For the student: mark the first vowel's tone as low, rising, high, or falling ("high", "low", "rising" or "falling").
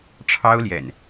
high